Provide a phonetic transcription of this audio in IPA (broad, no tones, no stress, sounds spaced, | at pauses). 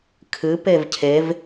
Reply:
kʰ ɨ p e v cʰ e v